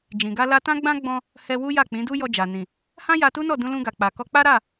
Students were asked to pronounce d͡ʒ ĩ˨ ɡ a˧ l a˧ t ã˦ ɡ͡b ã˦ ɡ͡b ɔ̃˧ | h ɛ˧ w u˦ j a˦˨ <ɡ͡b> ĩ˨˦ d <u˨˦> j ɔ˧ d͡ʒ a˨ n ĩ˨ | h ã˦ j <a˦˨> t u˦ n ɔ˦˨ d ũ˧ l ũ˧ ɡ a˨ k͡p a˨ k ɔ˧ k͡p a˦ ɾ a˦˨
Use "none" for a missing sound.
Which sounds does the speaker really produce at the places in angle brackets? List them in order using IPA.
k͡p, u˦, a˧

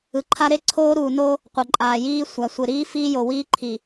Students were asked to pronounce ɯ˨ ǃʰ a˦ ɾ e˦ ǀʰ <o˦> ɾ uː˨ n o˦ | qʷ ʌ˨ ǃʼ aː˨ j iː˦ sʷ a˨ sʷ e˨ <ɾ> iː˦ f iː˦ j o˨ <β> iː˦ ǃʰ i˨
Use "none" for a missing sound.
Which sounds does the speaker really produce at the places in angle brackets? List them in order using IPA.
oː˦, ɾ, w

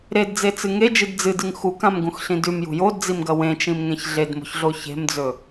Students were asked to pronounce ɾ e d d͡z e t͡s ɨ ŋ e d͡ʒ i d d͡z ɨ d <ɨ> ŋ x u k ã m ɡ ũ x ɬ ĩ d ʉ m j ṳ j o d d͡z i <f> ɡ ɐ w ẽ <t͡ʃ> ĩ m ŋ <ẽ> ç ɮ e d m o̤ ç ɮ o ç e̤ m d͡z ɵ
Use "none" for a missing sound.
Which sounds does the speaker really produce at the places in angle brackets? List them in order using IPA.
ɨ, m, t͡ʃ, ẽ

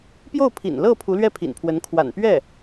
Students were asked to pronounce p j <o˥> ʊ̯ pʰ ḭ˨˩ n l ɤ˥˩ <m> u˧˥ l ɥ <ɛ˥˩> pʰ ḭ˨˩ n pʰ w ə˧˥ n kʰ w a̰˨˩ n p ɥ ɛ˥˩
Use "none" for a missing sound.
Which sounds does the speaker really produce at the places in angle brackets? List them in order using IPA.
o˥˩, pʰ, ɛ˥˩

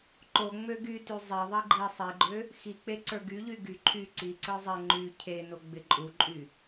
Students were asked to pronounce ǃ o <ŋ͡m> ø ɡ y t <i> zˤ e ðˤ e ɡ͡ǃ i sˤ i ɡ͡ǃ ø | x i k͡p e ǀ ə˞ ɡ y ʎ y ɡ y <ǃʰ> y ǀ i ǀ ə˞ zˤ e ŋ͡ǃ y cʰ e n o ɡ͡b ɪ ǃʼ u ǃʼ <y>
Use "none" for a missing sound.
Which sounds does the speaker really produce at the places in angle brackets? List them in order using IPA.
ŋ͡m, y, ǃʰ, y

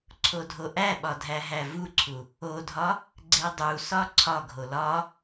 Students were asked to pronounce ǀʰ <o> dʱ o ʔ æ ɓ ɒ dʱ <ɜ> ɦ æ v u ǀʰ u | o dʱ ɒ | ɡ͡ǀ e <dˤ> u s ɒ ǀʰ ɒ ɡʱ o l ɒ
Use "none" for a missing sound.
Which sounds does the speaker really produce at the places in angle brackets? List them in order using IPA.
o, æ, dˤ

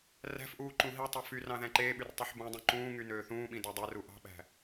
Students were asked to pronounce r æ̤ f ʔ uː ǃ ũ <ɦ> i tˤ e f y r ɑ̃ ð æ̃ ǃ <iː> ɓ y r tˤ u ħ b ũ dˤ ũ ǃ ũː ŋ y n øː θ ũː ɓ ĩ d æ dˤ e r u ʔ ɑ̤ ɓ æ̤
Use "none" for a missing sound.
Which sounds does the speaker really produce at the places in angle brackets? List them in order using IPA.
ɦ, eː

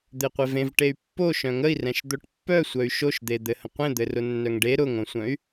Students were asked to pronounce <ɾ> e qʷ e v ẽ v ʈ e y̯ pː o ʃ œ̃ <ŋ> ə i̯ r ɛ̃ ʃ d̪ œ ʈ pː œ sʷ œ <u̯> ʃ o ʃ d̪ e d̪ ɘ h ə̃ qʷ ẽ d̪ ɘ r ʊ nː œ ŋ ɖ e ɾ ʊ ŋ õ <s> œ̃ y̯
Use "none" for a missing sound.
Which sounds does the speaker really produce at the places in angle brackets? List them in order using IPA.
d̪, ŋ, y̯, sʷ

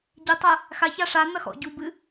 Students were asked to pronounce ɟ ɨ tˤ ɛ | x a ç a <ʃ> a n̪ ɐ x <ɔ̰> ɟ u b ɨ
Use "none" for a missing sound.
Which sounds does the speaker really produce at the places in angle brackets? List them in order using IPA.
ʂ, ɔ̰

